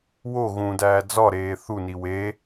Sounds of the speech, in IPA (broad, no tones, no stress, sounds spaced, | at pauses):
w o ɣ ũ d æː d͡z ɒ ɾ eː θ u n i w e